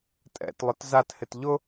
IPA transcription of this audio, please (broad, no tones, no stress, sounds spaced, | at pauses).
tʼ ɛ̰ t lˠ ʊ t z a t h ɪ t ʎ ʊ